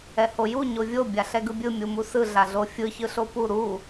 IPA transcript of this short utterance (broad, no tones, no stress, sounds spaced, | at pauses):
ɛ h o j u ɲ o vʲ o bʲ a ɬ ɛ ɡ ɯ bʲ ɯ mʲ u m u s ɯ ɮ a ɮ o fʲ ɯ ç ɯ ɬ o p u ɾ u